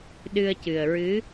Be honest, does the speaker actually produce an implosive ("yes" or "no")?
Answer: yes